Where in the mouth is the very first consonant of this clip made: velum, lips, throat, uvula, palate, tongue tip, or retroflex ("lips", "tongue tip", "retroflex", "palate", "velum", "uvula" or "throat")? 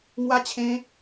velum